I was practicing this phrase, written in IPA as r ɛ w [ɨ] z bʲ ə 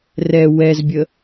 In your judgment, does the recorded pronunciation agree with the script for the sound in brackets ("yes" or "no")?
no